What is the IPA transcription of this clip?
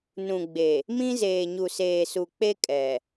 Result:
n ũ˨ ɡ͡b e˨ | m ĩ˦ z eː˨ ɲ u˨ s eː˨ s u˨ k͡p e˦ kʼ ɛ˨

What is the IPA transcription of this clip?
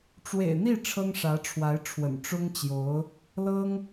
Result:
ʈ͡ʂ w ḛ˨˩ ɪ̯ n̪ i˥˩ ʈ͡ʂʰ ɤ˥ ŋ ʂ ä˧˥ ʈ͡ʂʰ w a˧˥ ɪ̯ ʈ͡ʂʰ w ə̰˨˩ n ʈ͡ʂ ʊ˥ ŋ t͡ɕ j o˧˥ ʊ̯ | l ɤ˥ ŋ

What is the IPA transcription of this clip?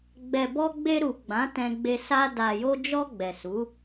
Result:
ɡ͡b ɛ˨ b ɔ˧ ɡ͡b e˧ ɾ u˨ ɡ͡b ã˨˦ t ɛ̃˧ ɡ͡b e˧ s a˧ d a˨ j o˧ d͡ʒ ɔ˧ ɡ͡b ɛ˨ s u˨˦

